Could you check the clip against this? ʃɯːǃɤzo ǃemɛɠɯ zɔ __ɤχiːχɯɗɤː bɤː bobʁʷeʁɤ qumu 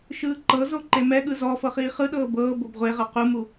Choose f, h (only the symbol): f